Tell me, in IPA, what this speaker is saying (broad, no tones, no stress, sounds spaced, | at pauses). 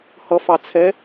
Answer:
h ʌ f ɑ t͡sʰ ɛ